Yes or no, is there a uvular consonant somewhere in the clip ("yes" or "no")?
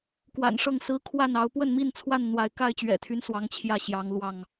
no